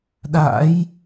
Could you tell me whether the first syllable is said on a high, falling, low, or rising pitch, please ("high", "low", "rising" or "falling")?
rising